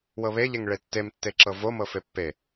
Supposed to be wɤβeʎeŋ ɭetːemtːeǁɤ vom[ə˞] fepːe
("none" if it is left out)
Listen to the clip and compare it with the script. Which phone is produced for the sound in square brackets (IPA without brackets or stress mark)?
ɤ